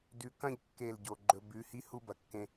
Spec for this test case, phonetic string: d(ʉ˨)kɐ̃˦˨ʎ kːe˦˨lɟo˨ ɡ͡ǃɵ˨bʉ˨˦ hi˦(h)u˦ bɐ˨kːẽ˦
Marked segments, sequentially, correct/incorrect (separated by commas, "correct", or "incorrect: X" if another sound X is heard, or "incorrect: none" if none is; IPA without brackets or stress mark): correct, correct